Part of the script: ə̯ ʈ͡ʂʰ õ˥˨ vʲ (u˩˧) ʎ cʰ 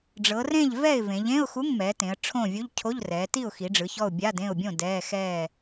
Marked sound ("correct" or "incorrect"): incorrect